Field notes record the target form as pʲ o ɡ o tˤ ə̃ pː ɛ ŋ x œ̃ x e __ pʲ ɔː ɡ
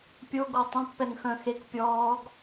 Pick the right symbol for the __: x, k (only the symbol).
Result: k